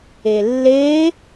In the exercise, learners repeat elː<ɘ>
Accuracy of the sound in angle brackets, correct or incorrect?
incorrect